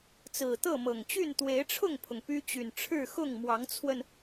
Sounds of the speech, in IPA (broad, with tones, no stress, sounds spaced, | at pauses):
t͡s ɹ̩˨˩ t̪ ɤ˥˨ m ɤ˨˩ ŋ t͡ɕ y˥˨ n t̪ w e˨˦ ɪ̯ ʈ͡ʂʰ ʊ˥˨ ŋ pʰ ʊ˩ ŋ p y˦ t͡ɕ y˨˩ n ʈ͡ʂʰ ɻ̩˥˨ x ʊ˥˨ ŋ m w ɑ˨˦ ŋ t͡sʰ w ə˧ n